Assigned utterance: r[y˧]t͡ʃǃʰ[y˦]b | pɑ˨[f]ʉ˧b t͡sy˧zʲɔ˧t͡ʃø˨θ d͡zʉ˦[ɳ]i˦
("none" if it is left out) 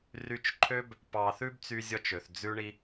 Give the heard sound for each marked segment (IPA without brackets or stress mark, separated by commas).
y˧, ø˦, θ, ɳ